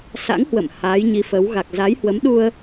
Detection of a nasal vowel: absent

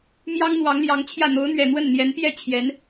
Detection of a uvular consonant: absent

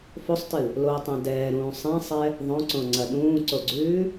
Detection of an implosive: present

